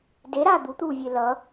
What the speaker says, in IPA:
deɾaː d̪ut̪uːvʲe lʌ

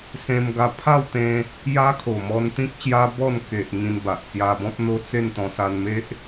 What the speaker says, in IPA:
sẽ˧mɡa˧pʰa˥˧wt̪ẽ˧ | ja˦kʰo˨˩mɔ˧nt̪ĩ˦k̚ ɕja˦bɔ˥˧n ke˨ʔ ŋĩ˧nba˨ʔt͡sja˧bɔ̃˦p̚ n̪o˦t͡se˥˧nt̪ɔ̃˧ sa˧nme˦ʔ

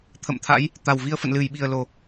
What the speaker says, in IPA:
t̪ʰə̰˧˨mt̪ʰa̰˧˥j | t̪a˨˩wvi˧ə̯fə̰˧˨n lɨ˧˩jɓi˨˩ə̯lo˨˩

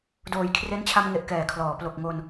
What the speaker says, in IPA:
doː˩˦jkʰre˦˥nt͡ɕʰa˧mŋe˨˩ʔ kɛː˨˩kʰlɔː˩˦ plo˨˩k̚ŋo˧n

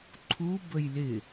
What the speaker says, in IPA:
ǃʰu bəjlɪ

